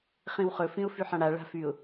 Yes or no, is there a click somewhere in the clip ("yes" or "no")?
no